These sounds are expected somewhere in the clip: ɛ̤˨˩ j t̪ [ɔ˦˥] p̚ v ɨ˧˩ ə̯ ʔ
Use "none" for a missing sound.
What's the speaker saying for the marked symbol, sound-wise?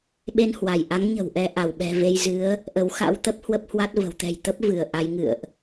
ə˦˥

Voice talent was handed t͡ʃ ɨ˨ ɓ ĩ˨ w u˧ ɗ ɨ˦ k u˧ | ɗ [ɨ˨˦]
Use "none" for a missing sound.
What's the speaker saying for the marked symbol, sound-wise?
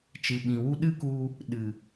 ɨ˨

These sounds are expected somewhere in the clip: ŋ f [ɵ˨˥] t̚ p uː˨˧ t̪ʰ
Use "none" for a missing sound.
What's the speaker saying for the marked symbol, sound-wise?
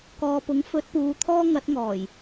ɵ˨˥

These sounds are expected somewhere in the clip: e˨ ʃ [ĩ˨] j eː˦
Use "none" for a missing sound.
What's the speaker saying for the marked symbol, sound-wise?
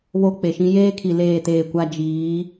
ĩ˦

